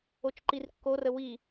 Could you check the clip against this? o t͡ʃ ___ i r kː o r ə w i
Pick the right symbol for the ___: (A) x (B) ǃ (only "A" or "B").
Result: B